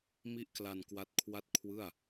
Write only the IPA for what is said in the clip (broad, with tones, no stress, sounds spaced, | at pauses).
m i˦˥ ʔ k l a˧ n k w a˦˥ t̚ kʰ w a˥˩ t̚ kʰ w ɯ˥˩ a̯